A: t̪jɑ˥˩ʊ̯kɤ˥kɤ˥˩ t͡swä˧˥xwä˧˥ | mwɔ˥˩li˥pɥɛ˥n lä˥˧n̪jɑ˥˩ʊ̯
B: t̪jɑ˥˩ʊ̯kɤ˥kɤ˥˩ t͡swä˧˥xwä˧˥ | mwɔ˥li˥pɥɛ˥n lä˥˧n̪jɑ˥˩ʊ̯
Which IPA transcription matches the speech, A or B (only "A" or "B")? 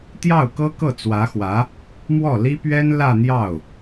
A